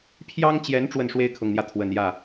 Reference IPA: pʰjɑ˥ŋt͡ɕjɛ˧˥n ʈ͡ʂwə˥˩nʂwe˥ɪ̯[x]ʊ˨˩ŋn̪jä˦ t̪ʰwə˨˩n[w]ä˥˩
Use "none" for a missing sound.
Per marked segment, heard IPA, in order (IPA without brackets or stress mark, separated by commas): kʰ, j